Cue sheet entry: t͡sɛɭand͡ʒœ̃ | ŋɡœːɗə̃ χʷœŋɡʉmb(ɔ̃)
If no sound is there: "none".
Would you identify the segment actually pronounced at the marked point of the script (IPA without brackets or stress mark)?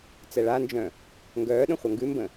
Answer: ə̃